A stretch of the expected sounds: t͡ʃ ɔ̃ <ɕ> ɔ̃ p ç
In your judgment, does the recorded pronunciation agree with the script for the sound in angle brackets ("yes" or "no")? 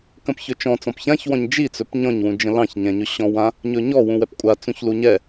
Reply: no